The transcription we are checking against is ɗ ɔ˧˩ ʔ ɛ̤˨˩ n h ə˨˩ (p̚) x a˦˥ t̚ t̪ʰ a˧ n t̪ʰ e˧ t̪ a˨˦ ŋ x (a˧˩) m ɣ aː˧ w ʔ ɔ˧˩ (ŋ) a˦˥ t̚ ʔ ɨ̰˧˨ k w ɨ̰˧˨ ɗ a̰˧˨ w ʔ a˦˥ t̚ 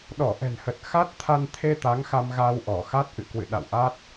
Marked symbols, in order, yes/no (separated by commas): no, no, no